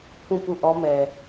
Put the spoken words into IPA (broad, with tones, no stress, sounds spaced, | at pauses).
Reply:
p ũ˦˨ p u˦˨ ʔ ɔ˦ m ɛ˨